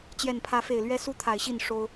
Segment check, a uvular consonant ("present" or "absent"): absent